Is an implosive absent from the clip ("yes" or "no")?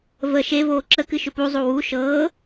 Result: yes